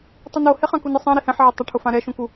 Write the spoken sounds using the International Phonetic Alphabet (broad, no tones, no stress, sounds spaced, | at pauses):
tˤ u n o h e χ ã k u n ɪ sˤ ã ɾ i h ɛ̃ ħ ʕ ɛ tˤ ɪ ʈʰ ʊ f ã ɾ ɛ ʃ ũ k u